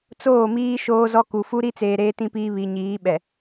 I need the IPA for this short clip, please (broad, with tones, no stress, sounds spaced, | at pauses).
t͡s oː˦˨ m iː˦ ʃ oː˦ z ɔ˦ k u˨ f u˦ ɾ i˦ t͡s eː˨ ɾ eː˦ t ĩ˦ p iː˦ β i˨ ɲ iː˨˦ ɓ ɛ˨